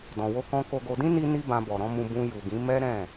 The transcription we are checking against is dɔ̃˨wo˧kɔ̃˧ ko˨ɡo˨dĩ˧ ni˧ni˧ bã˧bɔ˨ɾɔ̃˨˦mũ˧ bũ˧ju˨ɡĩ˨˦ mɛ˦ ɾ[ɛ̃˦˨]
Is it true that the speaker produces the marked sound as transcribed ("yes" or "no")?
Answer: yes